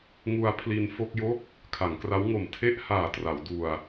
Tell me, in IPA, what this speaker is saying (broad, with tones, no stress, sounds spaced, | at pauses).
ŋ u˧ a̯ pʰ l i˧ n f o˥˩ k̚ j o˥˩ k̚ | kʰ a˩˦ ŋ k r a˦˥ w ŋ o˨˩ m tʰ e˥˩ ʔ h aː˨˩ t r a˩˦ w d u˧ a̯